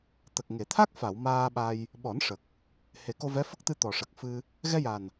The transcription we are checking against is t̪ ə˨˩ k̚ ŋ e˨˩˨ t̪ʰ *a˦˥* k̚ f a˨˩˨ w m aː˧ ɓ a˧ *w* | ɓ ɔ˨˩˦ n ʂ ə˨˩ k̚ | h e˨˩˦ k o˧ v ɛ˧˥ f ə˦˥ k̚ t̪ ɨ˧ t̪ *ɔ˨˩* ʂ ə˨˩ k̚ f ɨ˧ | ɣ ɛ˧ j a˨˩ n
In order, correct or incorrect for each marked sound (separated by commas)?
correct, incorrect, correct